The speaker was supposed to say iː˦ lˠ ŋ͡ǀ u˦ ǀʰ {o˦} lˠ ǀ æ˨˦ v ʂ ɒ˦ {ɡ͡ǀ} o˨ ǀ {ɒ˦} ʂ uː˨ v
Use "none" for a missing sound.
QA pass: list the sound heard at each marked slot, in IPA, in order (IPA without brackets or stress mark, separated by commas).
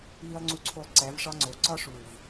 o˦, ŋ͡ǀ, ɒ˦